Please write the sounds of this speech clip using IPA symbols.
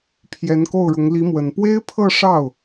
pʰ j ɛ˧˥ n k o˥˩ ʊ̯ ɻ ʊ˧˥ ŋ l i˧˥ m w ə˨˩ n p w e˥ ɪ̯ pʰ ɤ˥˧ ʂ ɑ˥˩ ʊ̯

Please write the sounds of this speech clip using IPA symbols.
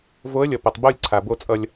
v o˨˥ ə̯ lʲ ʌ˩ p ʌ˩ tˤ b o˥˨ lʲ ǀʰ a˩ b o˧ t͡sʼ ʌ˧ lʲ

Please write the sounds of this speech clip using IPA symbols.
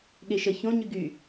ɠ e ʃ ə ç õ ɲ y ɡ y

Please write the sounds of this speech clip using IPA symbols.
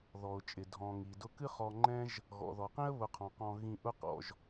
ð ɔ˩ ʊ̯ t͡ʃʼ ɪ˩ dʱ ɔ̃˩ ŋ i˩ d ʊ˦ k ɨ˦ χ ɔ˨ ŋ͡ǃ ɛ̃˦ ʒ | ɣ ɔ̰˩ ð ɔ˩ q ĩ˥ ə̯ β ʊ˨ qʰ ɔ̃˩ q ɔ̃˨ ɣ ĩ˨ ʔ ʊ˦ q ɔ̰˩ ʒ

